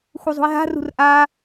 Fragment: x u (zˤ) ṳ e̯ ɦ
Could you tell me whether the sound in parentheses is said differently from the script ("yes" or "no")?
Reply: no